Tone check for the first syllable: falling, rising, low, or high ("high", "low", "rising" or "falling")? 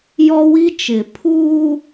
high